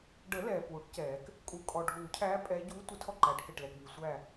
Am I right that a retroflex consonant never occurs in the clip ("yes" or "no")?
no